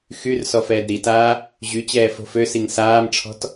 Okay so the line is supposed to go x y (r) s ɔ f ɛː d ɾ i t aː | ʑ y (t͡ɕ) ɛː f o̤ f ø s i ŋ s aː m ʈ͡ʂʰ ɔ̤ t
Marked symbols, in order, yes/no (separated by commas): yes, yes